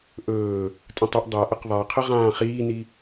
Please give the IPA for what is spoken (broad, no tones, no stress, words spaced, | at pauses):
ʔɵː | tʼə̃tˤɵʔ dˤa ʔəqðˤaqʰə ʁãːχiːni